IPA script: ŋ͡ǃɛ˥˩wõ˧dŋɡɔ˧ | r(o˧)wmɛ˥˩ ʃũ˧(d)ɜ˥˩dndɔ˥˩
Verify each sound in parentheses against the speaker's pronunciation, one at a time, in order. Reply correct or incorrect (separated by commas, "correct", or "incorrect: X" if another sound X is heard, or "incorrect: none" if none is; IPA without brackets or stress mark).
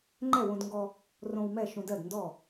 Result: incorrect: õ˧, correct